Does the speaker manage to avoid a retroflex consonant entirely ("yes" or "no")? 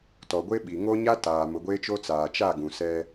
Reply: yes